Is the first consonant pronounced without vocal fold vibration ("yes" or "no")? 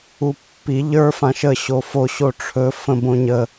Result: yes